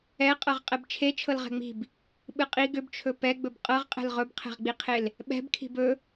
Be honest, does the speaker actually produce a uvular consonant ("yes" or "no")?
yes